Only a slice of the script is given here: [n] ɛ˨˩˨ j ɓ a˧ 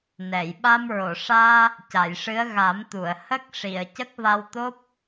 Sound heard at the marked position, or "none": n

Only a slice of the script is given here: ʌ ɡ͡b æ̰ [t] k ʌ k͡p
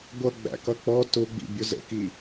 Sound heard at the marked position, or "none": none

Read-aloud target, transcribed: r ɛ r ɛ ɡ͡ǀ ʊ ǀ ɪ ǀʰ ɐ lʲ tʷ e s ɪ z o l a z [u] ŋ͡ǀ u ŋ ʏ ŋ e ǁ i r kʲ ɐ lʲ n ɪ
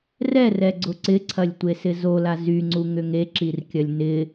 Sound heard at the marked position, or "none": y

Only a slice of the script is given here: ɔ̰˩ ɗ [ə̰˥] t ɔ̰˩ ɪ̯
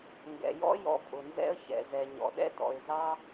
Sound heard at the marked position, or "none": ɛ̰˥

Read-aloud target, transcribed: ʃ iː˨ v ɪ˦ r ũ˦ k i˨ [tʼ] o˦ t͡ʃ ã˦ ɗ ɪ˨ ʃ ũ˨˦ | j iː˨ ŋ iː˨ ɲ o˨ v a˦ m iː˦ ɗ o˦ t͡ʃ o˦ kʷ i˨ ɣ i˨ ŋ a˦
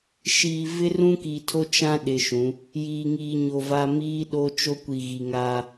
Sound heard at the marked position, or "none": tʰ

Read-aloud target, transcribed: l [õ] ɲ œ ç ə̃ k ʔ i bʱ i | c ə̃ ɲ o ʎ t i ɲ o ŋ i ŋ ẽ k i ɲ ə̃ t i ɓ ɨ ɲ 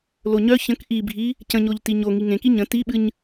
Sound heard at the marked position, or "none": o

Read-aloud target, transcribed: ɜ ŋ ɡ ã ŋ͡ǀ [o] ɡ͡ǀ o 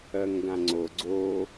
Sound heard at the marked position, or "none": o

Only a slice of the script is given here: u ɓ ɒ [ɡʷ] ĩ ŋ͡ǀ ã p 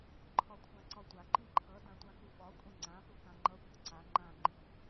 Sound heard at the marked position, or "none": kʷʼ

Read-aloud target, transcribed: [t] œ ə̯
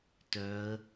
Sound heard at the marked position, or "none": t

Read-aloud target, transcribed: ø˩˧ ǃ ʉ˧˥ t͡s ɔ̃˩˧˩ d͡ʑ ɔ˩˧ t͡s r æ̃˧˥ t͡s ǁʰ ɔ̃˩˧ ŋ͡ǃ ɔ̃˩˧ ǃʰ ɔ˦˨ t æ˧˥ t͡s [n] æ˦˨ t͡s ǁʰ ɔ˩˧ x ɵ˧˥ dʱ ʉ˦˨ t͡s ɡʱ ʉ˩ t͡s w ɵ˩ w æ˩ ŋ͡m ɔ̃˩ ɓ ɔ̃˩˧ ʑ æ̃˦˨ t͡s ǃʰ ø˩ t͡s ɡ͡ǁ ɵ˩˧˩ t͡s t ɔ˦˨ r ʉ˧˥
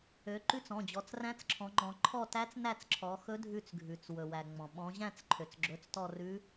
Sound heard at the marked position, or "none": n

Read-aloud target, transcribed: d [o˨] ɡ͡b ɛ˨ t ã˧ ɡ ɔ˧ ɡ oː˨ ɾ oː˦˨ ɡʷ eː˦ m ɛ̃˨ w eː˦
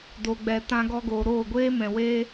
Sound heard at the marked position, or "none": o˨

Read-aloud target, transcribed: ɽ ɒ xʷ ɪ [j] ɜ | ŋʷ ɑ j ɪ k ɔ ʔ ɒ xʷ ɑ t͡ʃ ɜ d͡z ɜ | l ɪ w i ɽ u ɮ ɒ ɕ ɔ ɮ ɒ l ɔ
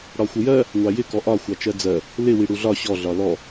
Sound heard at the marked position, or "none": j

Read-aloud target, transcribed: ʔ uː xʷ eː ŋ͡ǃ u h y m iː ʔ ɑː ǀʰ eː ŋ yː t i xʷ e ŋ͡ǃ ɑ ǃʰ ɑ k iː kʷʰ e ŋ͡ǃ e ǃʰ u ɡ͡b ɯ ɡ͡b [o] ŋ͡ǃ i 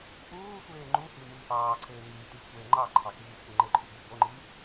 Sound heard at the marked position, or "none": o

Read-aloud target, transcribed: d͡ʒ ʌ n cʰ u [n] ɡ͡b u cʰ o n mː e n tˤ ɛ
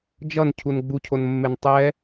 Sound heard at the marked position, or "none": n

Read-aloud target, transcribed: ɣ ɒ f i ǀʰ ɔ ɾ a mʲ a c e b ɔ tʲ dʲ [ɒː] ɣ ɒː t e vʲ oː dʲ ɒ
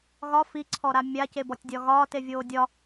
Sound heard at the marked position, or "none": ɒ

